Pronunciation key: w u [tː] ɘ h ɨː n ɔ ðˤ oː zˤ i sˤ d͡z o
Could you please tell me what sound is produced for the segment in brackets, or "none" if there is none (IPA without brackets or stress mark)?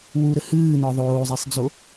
ɾ